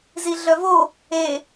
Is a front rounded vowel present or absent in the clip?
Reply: present